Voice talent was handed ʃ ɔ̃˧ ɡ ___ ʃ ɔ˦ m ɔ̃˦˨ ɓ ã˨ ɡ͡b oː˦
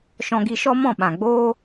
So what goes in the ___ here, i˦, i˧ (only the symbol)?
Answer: i˧